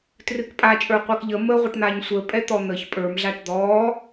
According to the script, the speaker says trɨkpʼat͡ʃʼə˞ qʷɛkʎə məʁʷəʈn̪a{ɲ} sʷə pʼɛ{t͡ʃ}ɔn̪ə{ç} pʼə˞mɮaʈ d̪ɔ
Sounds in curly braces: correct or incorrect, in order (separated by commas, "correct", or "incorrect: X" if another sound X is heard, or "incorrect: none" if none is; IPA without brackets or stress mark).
correct, incorrect: t̪, correct